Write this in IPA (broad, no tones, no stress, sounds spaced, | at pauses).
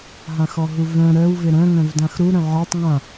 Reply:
ɦ ã x ɔ ɦ u v œ̃ ɾ œ w v ɪ ɾ œ̃ ŋ œ̃ v d ã x ɾ u ɾ œ̃ ʕ a tˤ ŋ ã